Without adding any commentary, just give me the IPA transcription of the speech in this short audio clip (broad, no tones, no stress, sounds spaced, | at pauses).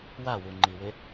w a w u ŋ͡ǃ i w ɪ